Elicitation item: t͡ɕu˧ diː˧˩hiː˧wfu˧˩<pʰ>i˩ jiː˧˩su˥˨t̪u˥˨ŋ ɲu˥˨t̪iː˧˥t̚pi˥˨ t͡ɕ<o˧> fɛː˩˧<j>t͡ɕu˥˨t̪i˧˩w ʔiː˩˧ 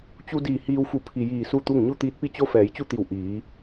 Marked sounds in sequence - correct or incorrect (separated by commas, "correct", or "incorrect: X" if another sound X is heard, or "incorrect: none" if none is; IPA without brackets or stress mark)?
correct, incorrect: o˧˥, correct